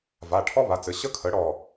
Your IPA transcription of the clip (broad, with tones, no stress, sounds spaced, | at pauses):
v a˩˧˩ ʈʰ ɔ˥ β a˩˧˩ t͡s ɘ˩˧˩ ɕ ə˥ kʰ ə˩˥ ɽ ɔ˧˩